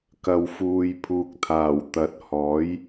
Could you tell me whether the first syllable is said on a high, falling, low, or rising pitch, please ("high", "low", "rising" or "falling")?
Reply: low